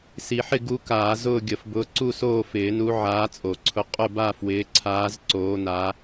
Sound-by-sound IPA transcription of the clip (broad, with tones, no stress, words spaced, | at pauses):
si˨˩˦ħɪ˦˨ ɡu˨˦ kaː˨˩˦ zʊː˦˨ɡʲə˨˩˦f bʊː˨˦ǀu˦˨soː˦˨fɪː˨˩˦ nu˨˦ ʕaː˨˦t͡sʼo˨˩˦ǀʰʊ˨˦ qʼʊ˦˨ba˦˨fwɪː˨˦ǀʰaː˨˦z ǀoː˨˦na˨˦